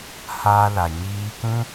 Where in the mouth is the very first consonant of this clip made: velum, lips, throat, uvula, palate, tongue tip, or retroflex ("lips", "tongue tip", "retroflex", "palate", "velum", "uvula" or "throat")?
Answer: throat